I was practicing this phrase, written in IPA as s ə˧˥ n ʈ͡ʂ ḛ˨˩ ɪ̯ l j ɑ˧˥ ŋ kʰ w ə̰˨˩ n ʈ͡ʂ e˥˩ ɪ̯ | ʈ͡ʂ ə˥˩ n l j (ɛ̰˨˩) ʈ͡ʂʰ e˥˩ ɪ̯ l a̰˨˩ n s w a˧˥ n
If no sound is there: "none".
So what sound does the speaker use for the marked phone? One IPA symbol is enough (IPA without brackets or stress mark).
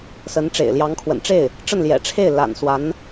ɛ̰˨˩